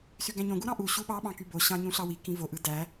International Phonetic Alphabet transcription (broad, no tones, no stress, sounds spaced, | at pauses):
s y ɡ æ̃ ɲ õ ɡ u ɾ ɑ̃ ʔ u ɕ u ɓ ɑ ɓ ɑ̃ k y b o ɕ ɑ̃ ɲ ũ ɬ ɑ w i k ĩ v o ʔ ɯ d æ